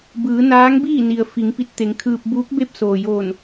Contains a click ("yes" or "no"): no